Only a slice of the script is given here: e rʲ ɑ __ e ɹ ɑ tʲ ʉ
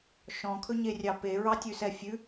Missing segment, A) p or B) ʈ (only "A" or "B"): A